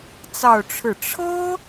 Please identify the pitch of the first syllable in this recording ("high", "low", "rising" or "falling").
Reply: falling